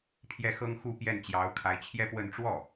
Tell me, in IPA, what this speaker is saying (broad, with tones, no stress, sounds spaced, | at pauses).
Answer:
pʰ j ɛ˥˩ x ɤ˥ ŋ x u˥˧ p j ɛ˥˩ n t͡ɕ j ɑ˧˥ ʊ̯ kʰ a˧˥ ɪ̯ t͡ɕʰ j ɛ˥˧ p w ə˥˧ n ʈ͡ʂ w ɔ˥˩